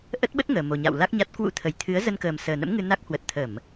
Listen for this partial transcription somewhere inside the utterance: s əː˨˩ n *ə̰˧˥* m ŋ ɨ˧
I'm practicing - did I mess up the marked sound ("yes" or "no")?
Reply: no